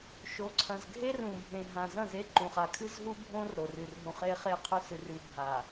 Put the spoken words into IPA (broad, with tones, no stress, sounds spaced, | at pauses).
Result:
ʃ o˨˦ ǀʰ ɐ̃˨ z ɡʱ e˦ r ũ˨ bʱ ẽ˨ ɦ ã˨ z ɐ̃˦˨ z e˦ ǃ ũ˨ χ a˨ kʰ ɨ˦ z ɦ u˦ bʱ õ˦ r ɾ o˨ r ɨ˨ r ɦ ũ˨ χ e˦ χ e˦˨ qʰ ɵ˦ s ɨ˨ r ʉ˨ bʱ a˨